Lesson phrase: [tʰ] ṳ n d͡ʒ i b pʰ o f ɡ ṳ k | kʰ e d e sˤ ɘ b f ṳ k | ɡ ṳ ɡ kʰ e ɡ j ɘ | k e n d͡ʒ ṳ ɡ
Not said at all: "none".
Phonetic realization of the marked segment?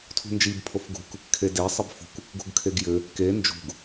tʰ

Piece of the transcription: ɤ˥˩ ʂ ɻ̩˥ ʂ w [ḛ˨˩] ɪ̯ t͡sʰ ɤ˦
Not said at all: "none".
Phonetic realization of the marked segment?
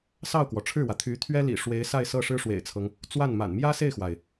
ḛ˨˩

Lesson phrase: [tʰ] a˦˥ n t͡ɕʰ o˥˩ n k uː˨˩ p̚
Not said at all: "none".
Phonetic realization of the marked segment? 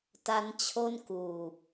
t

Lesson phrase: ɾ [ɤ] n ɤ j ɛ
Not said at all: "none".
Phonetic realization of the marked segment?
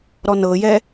ɔ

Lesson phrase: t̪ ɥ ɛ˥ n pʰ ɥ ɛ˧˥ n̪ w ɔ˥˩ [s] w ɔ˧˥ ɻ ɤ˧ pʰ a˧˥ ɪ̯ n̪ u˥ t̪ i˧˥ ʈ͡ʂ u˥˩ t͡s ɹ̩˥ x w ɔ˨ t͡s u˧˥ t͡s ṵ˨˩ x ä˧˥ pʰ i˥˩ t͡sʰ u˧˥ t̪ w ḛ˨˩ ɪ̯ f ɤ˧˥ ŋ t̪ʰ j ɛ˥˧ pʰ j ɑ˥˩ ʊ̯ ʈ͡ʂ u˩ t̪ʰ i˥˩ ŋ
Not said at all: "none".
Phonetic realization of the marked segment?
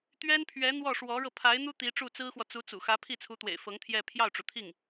ʂ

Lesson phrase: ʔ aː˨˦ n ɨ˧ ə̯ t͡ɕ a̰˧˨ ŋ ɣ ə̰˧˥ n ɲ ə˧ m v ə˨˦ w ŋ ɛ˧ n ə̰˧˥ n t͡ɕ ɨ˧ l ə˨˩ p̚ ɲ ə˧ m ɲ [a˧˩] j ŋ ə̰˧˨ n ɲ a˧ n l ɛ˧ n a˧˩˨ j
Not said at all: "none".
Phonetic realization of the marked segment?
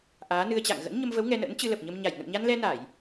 a˧˩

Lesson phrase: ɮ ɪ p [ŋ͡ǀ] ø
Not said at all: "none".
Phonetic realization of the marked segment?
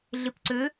ǀ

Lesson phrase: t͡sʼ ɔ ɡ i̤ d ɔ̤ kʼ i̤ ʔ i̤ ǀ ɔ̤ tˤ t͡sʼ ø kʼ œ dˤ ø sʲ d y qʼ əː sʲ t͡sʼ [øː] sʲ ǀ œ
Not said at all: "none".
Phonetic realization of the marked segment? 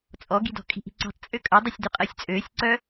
øː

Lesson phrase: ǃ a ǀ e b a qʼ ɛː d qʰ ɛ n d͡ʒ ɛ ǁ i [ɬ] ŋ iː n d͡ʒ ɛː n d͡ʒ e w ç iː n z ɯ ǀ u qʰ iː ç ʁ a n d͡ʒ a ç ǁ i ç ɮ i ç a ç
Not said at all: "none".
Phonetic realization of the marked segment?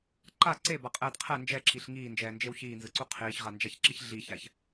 ɬ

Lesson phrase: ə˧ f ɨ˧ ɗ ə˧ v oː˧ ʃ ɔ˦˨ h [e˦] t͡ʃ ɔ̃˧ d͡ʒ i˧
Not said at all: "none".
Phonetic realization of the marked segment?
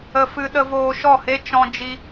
e˦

